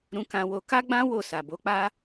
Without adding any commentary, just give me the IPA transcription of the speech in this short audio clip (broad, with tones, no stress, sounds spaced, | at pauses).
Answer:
ɾ ũ˧ k ã˧ w o˧ k a˦ ɡ͡b ã˦ w o˦˨ s a˨ b o˨˦ k͡p a˦